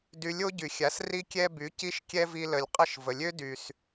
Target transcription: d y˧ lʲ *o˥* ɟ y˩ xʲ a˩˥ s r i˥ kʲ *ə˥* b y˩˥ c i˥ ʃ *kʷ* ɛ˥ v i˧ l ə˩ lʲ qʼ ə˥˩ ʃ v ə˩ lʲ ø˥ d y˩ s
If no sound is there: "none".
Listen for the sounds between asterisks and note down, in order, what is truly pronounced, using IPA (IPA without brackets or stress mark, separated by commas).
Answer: o˥, ɛ˥, kʲ